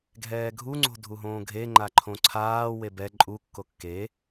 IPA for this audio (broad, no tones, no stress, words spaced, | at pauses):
ɡʱɛːɡʱu ŋ͡ǀo̤dʱuɦõːɡʱe ŋ͡ǃaǃʰõǀʰaː webɛ ǃʼu kːokːe